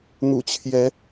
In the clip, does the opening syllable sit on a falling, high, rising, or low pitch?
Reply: low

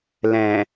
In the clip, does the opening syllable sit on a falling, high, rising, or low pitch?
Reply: low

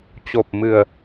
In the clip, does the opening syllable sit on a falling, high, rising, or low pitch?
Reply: low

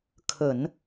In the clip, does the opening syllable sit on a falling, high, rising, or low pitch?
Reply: low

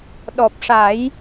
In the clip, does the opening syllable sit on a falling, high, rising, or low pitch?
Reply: low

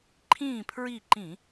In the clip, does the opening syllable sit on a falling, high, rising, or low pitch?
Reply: falling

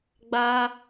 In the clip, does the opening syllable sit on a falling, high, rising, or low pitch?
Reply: high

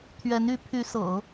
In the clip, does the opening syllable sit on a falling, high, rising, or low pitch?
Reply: rising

